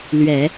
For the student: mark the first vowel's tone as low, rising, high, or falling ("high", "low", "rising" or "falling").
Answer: low